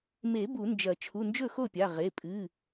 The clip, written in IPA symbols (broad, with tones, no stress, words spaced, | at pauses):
me˨˩˦ bu˨˩˦nd͡ʒɐ˨˩˦ t͡ʃʰu˩˧˩nd͡ʒɵ˥˩xo˥˩pʲa˩˧˩ ʁe˩˧˩pʼɨ˩˧˩